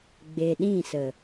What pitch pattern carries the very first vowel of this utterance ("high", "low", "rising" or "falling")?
low